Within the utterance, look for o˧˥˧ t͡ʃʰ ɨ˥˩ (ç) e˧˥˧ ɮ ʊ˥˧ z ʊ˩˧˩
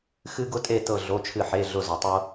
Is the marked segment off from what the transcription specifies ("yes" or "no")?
yes